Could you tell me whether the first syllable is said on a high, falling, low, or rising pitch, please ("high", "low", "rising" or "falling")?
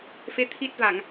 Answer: rising